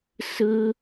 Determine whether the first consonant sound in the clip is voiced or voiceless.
voiceless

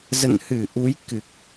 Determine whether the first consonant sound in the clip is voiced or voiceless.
voiced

